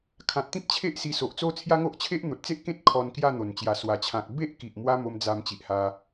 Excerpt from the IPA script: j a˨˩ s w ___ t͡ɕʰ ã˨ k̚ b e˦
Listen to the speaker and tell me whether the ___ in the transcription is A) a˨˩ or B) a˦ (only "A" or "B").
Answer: A